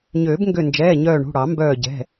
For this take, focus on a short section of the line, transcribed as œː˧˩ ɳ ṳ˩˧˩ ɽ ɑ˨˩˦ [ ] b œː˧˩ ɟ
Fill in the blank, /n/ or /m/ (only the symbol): m